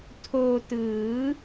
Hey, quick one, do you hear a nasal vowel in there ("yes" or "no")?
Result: no